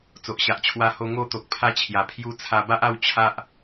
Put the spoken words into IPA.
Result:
t͡s o˨ ʔ ɕ a˨ ʔ t͡ɕʰ w a˧ h o˧ ŋ o˥˧ t̪ o˨ k̚ pʰ a˧ t͡ɕʰ j a˨˩ pʰ j u˧ t͡sʰ a˧ b a˦ ʔ a˥˧ w t͡ɕʰ a˦ ʔ

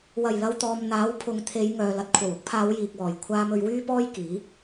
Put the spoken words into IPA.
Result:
w ɐ˨˩ j l ɐ˧ w t̪ ɔː˨ m n̪ aː˨˥ w pʰ ʊ˨˧ ŋ t̪ʰ e˨˧ j ŋ œː˨ l ɐ˨ t̚ kʷʰ ɐ˨˩ w ʊ˨˥ k̚ pʰ aː˨˧ w j iː˨ k̚ w ɔː˨˩ j kʷʰ aː˧ m ɵ˧ ɥ w yː˥ p ɔː˥ j k iː˨˥

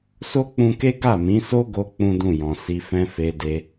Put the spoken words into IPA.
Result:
s o˦ k͡p ũ˧ k e˦ ɡ a˦˨ m ĩ˨˦ s o˦ ɡ o˧ k͡p ũ˦ d ũ˦˨ j ɔ̃˨ s i˧ f ɛ̃˦ f e˧ d e˧

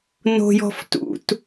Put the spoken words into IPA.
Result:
n o̤ j ɔ̤ f t ṵ t

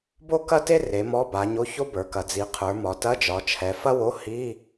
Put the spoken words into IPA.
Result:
b o˥ k ɐ˥ t e˥ r e˩˧ m ɔ˧˥˧ b a˩˧ ɲ o˧˥˧ ç o˥ b ə˞˩˧ k ɐ˩˧ d͡z i˩˧ qʰ ə˞˩˧ m ɒ˩˧ t ɐ˧˥˧ d͡ʒ ɒ˩˧ t͡ʃʰ ɛ˩˧ f ɐ˥ w o˧˥˧ h i˧˥˧

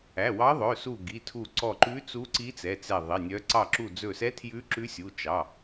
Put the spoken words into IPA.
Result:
æ˩˧˩ w ɑ˧˥ ðˤ ɵ˩˧˩ s u˧˩ ɡ i˩˧˩ tʰ u˧˩ ǀ ɔ˧˩ ǃ ʉ˧˥ t͡s u˧˥ ǀ i˧˥ t͡s ɛ˩˧˩ t͡s ɛ˧˩ ðˤ i˩˧˩ nʲ œ˧˥ ǀ ɑ˧˩ ǁ u˧˩ d͡z ɵ˧˩ s ɛ˧˥ tʰ j ʉ˧˥ ǁ ʉ˧˥ sʲ u˩˧˩ t͡ʃ ɑ˩˧˩

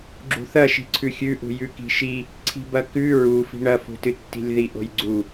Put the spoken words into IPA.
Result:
ɡ͡ǁ ṳ θ ɐ ʃ i̤ ǀʰ ʉ xʲ ʉ ʔ ṳ j ʉ k i̤ ʃ i | ǀʰ i̤ b ɐ k ʉ ɹ u f i̤ ɳ ɐ f ṳ t ɨ tː i̤ lʲ ð i ʔ o̤ j ɡ͡ǀ u

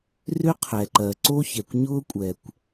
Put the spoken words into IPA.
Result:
r ʏ˥ qʰ ɛ˩ ǃ ɜ˩ ǀ o˥ ç ɛ˩ kʷ ɲ ʊː˥ kʷʼ ɛ˩ kʷ

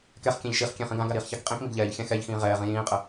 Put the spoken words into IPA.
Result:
k ɛ χ kʲ ɛ̃ ʎ ʃ i χ kʲ ɛ̃ χ ĩ ɡ ã ɡ a ɾ iː χ ç a k qʼ ĩ k m i ɡ ʎ ɛː ʎ xʲ ã x ɛ ʎ x ĩː ʁ ɛː ʁ ĩ j ĩː qʼ ə

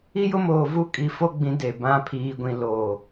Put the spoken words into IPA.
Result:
i˦ j ʊ˦ m oː˨ v u˦ kʼ i˨ f o˦ ɡ͡b ĩ˨˦ d e˨ b ã˦ pʰ iː˦ ɡʷ ĩ˦ l oː˨

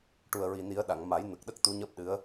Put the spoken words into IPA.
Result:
ʈ u˨˩ ə̯ ɹ i˨˩ n i˨˩˦ ə̯ ɗ a˨˩˨ ŋ m a˨˩˦ j n ə˨˩ k̚ ɗ ə˦˥ k̚ t̪ u˧˥ ɲ əː˦˥ p̚ ɗ ɨ˧˥ ə̯

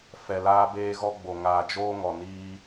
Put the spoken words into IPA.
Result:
f ɛ˨ l aː˧ b eː˧ ɣ ɔ˧ ɡ͡b o˨ ŋ aː˨ d͡ʒ oː˧ ŋ ɔ˨ n iː˧

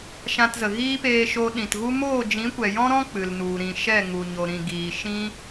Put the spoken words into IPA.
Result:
ʃ ã˧ t z ə˨ ɣ iː˦ p eː˧ ʃ o˧ ɗ ĩ˨ t ɣ u˦ m oː˦˨ d͡ʒ ĩ˨˦ kʷ ɛ˨ j ɔ̃˦ ɾ ɔ̃˦ k͡p ɨ˨ l n u˨ ɾ ĩ˨ ʃ ɛ˦˨ ŋ u˨ ɲ o˨ ɾ ĩ˨ ɡ iː˨ ʃ ĩ˦

